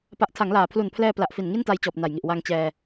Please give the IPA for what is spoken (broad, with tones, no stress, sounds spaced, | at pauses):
p a˨˩ ʔ tʰ a˩˦ ŋ l aː˩˦ pʰ l u˨˩ n pʰ l ɛː˧ p l a˨˩ ʔ f i˨˩ n ŋ i˥˩ n t a˧ j t͡ɕ ɔː˨˩ p̚ n a˨˩ j ŋ i˨˩ ʔ w a˧ ŋ t͡ɕ ɛː˧